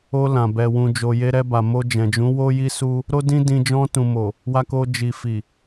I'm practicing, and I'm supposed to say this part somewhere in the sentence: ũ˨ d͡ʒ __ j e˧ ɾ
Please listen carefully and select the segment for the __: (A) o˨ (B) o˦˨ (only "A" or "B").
A